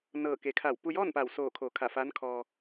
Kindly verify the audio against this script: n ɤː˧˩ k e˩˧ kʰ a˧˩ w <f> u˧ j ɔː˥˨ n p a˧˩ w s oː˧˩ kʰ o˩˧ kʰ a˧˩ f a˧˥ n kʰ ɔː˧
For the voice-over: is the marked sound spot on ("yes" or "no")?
no